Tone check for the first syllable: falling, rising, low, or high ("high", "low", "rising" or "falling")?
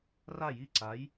falling